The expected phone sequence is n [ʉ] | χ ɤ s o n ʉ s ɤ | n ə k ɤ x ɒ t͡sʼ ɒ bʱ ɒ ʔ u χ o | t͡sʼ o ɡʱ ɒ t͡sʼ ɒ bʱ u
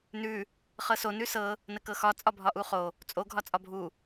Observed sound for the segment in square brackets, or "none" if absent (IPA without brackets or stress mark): ʉ